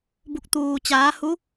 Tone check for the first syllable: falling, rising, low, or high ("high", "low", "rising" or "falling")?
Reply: falling